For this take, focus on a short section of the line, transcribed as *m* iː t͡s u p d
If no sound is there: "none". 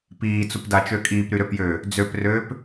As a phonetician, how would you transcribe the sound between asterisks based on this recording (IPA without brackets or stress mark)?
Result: p